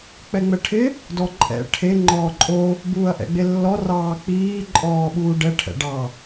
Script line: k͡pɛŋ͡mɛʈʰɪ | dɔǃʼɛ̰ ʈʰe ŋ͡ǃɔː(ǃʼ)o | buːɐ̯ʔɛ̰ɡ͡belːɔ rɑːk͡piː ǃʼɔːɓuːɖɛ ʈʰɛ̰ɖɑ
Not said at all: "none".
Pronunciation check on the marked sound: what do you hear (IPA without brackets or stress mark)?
ǃʼ